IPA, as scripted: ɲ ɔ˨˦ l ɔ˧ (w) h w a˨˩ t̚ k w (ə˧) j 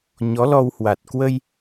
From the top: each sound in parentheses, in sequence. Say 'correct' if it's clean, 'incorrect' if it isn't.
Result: correct, correct

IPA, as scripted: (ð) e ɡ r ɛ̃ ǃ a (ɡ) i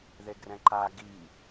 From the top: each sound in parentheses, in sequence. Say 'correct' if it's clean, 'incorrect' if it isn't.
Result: correct, correct

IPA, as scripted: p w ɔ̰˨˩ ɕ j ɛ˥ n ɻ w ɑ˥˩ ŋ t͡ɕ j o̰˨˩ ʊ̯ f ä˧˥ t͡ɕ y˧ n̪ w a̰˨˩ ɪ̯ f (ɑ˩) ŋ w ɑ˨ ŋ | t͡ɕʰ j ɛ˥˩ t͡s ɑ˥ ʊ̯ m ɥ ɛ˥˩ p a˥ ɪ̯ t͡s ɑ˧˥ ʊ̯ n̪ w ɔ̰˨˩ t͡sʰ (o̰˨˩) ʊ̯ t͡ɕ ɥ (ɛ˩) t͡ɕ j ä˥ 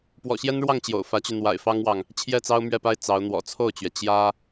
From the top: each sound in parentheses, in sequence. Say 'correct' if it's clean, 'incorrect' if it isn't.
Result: incorrect, incorrect, correct

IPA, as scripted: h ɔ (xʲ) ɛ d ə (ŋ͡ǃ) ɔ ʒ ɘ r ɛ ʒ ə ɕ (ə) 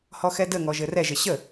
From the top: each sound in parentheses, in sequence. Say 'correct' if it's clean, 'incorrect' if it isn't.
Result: incorrect, incorrect, correct

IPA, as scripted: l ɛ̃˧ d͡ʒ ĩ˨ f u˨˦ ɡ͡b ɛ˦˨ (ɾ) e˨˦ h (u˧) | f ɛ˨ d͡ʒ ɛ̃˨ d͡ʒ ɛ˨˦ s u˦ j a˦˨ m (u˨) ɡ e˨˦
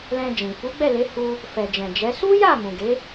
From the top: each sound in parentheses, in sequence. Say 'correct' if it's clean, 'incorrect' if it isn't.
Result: incorrect, correct, incorrect

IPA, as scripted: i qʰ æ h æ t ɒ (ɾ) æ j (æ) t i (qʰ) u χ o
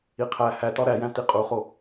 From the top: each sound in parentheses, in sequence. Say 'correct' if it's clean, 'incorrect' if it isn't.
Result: correct, incorrect, incorrect

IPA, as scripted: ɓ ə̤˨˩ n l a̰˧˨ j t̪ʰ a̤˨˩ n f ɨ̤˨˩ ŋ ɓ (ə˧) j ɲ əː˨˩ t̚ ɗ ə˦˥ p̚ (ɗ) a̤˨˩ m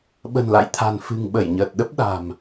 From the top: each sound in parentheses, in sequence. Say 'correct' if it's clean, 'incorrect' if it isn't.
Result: incorrect, correct

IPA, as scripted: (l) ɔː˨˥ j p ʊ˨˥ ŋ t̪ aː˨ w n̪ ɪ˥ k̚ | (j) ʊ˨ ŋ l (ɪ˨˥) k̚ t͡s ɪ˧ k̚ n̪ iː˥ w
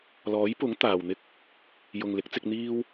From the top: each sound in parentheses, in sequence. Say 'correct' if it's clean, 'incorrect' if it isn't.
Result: correct, correct, correct

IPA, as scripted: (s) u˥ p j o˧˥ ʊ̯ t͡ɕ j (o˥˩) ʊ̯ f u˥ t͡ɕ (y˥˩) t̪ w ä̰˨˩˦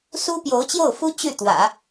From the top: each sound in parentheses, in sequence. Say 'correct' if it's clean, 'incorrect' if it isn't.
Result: correct, correct, correct

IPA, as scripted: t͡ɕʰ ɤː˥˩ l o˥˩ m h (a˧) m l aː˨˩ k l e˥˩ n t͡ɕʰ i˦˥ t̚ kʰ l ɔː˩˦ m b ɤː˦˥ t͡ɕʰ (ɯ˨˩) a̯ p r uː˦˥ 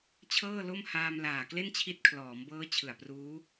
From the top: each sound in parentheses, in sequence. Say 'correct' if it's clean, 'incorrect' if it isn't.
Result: incorrect, correct

